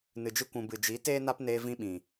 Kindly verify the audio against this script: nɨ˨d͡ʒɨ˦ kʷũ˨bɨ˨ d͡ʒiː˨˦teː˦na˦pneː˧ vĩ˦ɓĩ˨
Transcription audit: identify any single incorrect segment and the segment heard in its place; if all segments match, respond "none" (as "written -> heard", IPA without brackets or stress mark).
none